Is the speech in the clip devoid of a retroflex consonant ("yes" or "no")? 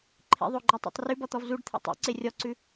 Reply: no